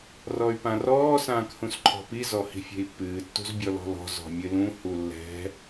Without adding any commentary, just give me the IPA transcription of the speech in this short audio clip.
r ɔ y̯ p ã r ɔː s ãː k h ũ s ǃʰ ɔ̤ p i z ɔ h i̤ fʲ e̤ i̯ pː ɨː tː ṳ z bʲ ɔ l ɔ̤ l ɔ̤ z ɔ̤ mʲ ɨ l ũ h u lː ɛ̤

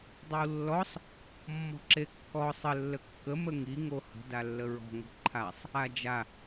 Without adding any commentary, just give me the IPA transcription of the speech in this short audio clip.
dˤ o w lː ɔ sˤ | mː ɔ̤ ǁ e kː ɔ sˤ ə lː ə kː ə m ə ŋ i ŋ o h ə̤ d a lː ə ɹ ɔ̤ ŋ ə̤ ǃʰ a sˤ | a d͡ʒ a

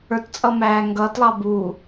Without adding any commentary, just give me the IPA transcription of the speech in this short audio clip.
ə˞ t t͡sʼ ʌ m æː ŋ ɡ ʌː t lˠ ɑ b u

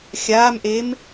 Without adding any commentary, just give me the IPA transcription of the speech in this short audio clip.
xʲ aː m ʔ e m

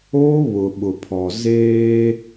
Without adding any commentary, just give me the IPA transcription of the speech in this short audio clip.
oː˦ β ʊ˨ ɓ ʊ˨ pʰ ɔ˨ z eː˦

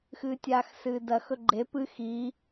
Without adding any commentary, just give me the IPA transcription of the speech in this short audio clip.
x ɨː tʲ aː x s ɨː d ɐ x ɵ ɡ͡ǃ e p ɨ x i

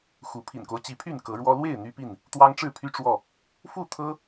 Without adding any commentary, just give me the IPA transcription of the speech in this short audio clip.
x u˨˦ pʰ ḭ˨˩ n k o˦ ʊ̯ t͡ɕ i˨˦ pʰ y˥˨ n k ɤ˨˦ ɻ w ɔ˦ l w e˥˨ ɪ̯ n̪ y˦ p i˥˨ n | t̪ w ɑ˦ ŋ ʈ͡ʂ ɻ̩˥˨ pʰ y˦ ʈ͡ʂ w ɔ˥˨ | f u˥˨ t̪ʰ ɤ˦

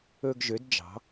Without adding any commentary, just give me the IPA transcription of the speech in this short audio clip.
ɵ˦ ɡ ʒ ø˨˥ d d͡ʒ ɑ̤˨˥

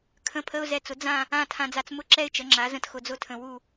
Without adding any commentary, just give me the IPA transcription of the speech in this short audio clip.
kʰ ə̃˧˥˧ pʰ ə˧˥˧ ʊ̯ z ɛ˧ t͡s ʊ˩˥ d͡z ã˥˧ | ã˥˧ tʰ ã˧ d͡z a˧ t͡s m ʊ˥˧ ǁ ɛ˥˧ ɪ̯ t͡ʃ ə˩˥ ŋ͡ǁ a˩˥ z ə̃˧ t x ʊ˧ d͡z ʊ˥˧ tʰ ə̃˧ w u˥˧

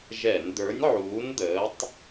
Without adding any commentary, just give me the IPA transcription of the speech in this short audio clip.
ʒ ɛ˧˩˧ n d̪ ə˞˨˥ nʲ ʕ uː˨˥ n d̪ əː˨˥ tˤ

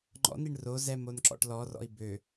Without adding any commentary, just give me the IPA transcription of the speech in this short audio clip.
ŋ͡ǃ ɔ̰ n i ɳ r o z ɛ m o n ǁ ɔ̰ ʈ l ɔ r ɔ̰ i̯ b ø

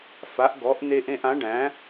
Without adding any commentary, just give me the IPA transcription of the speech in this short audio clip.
f a˨˥ ʔ ɡ ɔ˨˥ ʔ n e˥ ʔ ẽ˥ ʔ ã˨˥ ɖ æ̃˨˥

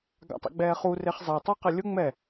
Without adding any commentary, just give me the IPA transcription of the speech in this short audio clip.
ɡ a̰ tˤ ḛ ɡ͡b ɛː χ u r e χ zˤ e tˤ u q e lʲ ʊ ŋ͡m ɛ

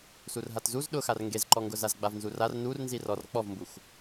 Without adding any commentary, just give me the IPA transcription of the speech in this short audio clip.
s u r ɦ a t z u z ɗ ʊ x a r ŋ ɡ e z ǃ ɔ ŋ ɡ ʊ z a z ɡ͡b a v n z u r a r n u r n z i r ɔ r k͡p ɔ v m b u x

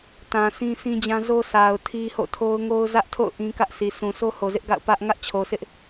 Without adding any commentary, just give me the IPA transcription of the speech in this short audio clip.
t ã˨ s ĩ˦ s ĩ˦ d͡ʑ ã˦ z o˦ sʰ a˨ ʊ̯ tʰ i˦ h o̰˦˨ tʰ o˦ ʊ̯ ŋ o˦ ʊ̯ z ä˦ ʔ tʰ o̰˦˨ ʊ̯ ʔ ĩ˦ k ä˦ ʔ s i˨ sʰ ũ˨ sʰ o˦ h o˨ z ɪ˦ ʔ ɡ a̰˦˨ ʊ̯ p ä˦ ʔ ŋ ä˦ ʔ t͡ɕʰ o˨ s ɪ˦ ʔ

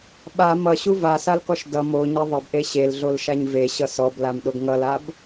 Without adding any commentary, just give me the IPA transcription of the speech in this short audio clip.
ɓ a m ʌ ɕ u v a s a l k ɔ ʃ d ʌ m o ɲ e ðˤ ʌ b ʔ e ɕ e l ɮ o l ʃ a ɲ v e ɕ ʌ s ɔ b l a m ɗ o ɡ ŋ ʌ l a b

